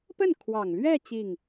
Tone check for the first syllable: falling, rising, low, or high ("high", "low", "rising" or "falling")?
falling